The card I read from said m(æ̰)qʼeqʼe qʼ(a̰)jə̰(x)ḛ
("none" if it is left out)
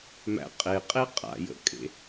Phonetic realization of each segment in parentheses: æ̰, a̰, kʼ

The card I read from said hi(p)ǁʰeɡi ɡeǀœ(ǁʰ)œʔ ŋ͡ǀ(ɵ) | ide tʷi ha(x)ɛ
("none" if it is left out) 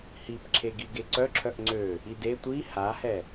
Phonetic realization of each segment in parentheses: p, ǁʰ, ø, h

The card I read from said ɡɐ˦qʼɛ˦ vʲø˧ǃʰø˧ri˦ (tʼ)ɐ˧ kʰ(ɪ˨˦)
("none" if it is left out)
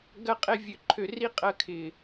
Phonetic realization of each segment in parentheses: qʼ, ɪ˨

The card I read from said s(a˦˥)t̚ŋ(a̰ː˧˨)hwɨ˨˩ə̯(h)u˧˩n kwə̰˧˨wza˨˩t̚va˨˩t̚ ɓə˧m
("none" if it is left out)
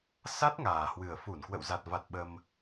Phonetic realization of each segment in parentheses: a˦˥, aː˨˩, f

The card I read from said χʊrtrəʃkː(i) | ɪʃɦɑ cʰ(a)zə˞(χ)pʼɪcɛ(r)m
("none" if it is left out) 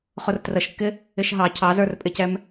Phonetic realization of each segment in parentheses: ɪ, ɑ, r, none

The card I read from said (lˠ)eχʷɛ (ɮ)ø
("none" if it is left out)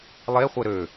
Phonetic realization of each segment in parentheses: lˠ, ɾ

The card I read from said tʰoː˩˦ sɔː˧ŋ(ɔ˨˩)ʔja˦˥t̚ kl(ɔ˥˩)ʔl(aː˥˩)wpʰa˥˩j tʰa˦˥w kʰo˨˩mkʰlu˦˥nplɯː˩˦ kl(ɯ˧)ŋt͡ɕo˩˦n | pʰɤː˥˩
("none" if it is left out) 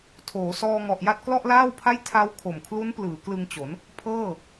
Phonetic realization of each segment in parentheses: ɔ˨˩, ɔ˥˩, aː˥˩, ɯ˧

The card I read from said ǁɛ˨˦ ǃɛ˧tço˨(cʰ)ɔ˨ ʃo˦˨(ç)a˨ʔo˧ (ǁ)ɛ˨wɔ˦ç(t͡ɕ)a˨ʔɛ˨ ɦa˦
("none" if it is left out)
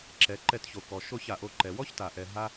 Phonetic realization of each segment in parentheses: k, ç, ǃ, t

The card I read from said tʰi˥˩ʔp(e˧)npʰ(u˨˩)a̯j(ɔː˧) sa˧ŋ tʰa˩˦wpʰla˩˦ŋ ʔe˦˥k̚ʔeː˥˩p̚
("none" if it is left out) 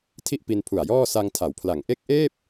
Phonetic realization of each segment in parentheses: i˧, u˨˩, ɔː˥˩

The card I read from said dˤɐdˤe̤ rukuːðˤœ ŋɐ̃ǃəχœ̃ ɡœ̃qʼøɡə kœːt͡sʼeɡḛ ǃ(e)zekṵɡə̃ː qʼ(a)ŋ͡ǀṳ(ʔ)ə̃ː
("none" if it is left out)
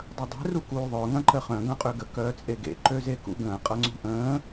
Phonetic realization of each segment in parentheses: ø, ʌ, ʔ

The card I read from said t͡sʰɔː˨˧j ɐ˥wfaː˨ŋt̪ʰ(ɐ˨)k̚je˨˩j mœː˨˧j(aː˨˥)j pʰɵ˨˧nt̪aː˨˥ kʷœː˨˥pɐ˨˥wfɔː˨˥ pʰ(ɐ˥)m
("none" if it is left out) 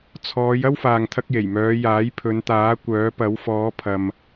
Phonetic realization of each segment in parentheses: ɐ˧, aː˨˥, ɐ˨

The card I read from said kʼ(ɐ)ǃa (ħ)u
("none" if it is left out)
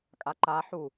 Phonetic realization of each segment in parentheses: a, ħ

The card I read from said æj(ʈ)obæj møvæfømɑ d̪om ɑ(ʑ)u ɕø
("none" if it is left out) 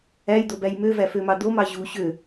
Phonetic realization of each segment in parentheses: d̪, ʑ

